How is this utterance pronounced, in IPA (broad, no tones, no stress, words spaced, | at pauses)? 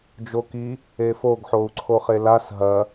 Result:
d͡ʒoki | efoɡ ħou̯ǀʰoχelas ɦɐ